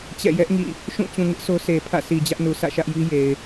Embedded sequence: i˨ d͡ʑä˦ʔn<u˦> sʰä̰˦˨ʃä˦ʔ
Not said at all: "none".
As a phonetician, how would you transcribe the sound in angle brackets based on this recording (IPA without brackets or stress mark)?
u˨